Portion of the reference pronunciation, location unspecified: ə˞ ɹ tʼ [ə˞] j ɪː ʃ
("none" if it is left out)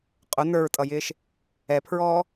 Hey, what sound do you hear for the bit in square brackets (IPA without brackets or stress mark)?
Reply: ʌ